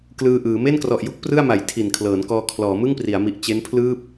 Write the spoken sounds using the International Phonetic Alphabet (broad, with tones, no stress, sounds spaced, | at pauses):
k l ɯː˧ ʔ ɯː˩˦ m e˥˩ n k r ɔ˨˩ ʔ j u˥˩ k̚ p r ɯ˥˩ a̯ m a˩˦ j tʰ i˨˩ n kʰ l ɤː˩˦ n k ɔː˧ kʰ l ɔː˩˦ m ɯ˥˩ ŋ p r i˩˦ a̯ m i˨˩ ʔ t͡ɕ e˦˥ n pʰ l ɯː˥˩ p̚